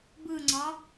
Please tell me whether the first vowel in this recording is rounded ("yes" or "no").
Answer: no